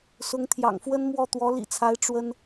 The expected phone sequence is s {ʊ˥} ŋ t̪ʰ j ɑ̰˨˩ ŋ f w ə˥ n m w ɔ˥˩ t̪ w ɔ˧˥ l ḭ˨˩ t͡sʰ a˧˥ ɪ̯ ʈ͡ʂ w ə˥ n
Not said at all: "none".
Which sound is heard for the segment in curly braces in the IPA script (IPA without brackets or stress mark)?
ʊ˧˥